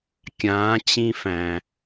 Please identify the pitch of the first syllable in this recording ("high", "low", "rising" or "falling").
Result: rising